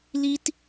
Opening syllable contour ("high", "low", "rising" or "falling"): high